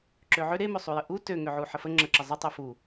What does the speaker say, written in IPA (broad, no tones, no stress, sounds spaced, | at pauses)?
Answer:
ǁ ø ʕ ø ɾ e m ø sˤ u j ə ʔ u t ø ŋ ø ʕ u ħ ə f ə ŋ͡ǁ ə ǁ ə zˤ ə tˤ ø f u